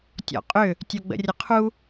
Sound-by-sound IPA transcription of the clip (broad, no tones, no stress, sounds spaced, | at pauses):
tʲ ɔ̰ qʼ ʏ | tʲ o ɡ͡b ə̰ rʲ ə qʰ u